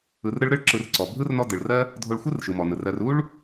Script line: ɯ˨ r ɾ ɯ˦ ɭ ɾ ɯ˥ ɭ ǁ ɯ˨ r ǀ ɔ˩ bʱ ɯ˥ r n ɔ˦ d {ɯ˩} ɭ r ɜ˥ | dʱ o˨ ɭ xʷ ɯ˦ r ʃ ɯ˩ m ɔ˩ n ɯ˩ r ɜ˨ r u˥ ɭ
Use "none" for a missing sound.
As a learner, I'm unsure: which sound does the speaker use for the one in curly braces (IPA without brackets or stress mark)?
ɯ˩